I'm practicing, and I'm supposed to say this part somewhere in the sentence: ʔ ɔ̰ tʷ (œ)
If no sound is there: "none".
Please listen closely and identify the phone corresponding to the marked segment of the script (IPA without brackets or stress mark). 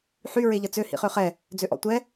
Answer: ɛ